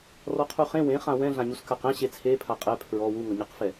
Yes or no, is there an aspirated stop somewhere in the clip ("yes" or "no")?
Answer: yes